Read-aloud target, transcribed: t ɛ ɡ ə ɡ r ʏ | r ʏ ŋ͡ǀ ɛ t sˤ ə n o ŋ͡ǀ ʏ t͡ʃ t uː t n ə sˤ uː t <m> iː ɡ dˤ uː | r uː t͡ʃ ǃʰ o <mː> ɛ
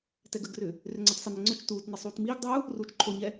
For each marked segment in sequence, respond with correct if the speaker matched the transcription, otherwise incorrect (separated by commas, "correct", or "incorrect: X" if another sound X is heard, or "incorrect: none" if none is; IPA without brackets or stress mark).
correct, incorrect: ɲ